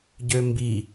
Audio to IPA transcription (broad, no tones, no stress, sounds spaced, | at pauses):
ɟ ø m b i